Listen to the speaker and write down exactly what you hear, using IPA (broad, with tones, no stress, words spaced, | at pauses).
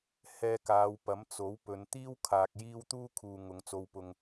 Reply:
hɛː˧kaː˨˧wpɐ˨˥m t͡so˨˥wpɵ˨˧n t̪iː˥wkʰaː˨k̚ jiː˥w t̪uː˥kʰuː˨ ŋʊ˨˧ŋt͡so˧wpʊ˧ŋ